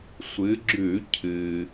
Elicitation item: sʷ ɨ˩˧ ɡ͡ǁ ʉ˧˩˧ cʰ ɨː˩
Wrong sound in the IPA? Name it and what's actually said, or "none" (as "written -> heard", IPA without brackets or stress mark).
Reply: none